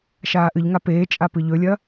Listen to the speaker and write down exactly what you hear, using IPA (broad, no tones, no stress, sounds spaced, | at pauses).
ʃ aː ʔ ɨ ʎ ŋ a p eː t͡ʃʼ a p ɨ ʎ ɵ lʲ ɐ